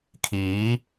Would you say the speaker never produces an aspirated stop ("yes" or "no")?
no